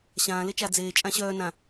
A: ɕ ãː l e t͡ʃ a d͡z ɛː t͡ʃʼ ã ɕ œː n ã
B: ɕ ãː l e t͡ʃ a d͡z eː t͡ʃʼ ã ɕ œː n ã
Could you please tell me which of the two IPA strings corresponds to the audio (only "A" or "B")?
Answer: B